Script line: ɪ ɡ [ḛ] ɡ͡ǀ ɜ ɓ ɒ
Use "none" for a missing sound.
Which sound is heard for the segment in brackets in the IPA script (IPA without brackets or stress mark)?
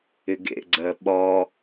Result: ḛ